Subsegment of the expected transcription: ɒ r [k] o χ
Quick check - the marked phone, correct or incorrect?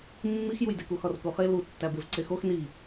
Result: correct